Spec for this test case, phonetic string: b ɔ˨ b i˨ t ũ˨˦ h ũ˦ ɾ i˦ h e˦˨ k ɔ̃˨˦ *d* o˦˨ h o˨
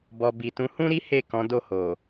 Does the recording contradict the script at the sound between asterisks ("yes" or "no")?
no